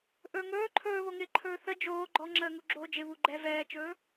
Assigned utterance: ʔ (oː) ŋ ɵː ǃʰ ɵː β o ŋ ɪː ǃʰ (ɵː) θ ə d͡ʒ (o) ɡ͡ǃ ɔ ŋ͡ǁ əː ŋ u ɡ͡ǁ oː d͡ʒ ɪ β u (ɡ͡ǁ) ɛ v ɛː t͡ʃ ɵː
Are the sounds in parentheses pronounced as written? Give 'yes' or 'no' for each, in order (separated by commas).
no, yes, no, no